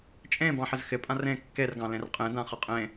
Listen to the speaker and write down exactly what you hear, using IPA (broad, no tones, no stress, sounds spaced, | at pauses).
t͡ʃʼ ẽ b ɑ̃ ħ ɪ z x ɪ pʼ ã r ẽ kː e r ɡ ɑ̃ l ẽ r qʼ ẽ d ã χ ə qʼ ẽ